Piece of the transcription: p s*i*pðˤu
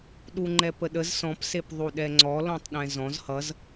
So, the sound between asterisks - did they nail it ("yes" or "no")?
no